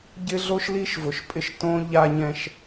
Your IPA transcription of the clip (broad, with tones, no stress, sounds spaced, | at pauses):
ɟ ɪ˦ ɮ o˦ ʃ l i˦ ʃ v ʊ˨ ʃ pʼ ɪ˦ ʃ t õ˦ ʎ a˦ ɲ ɛ̃˦ ʃ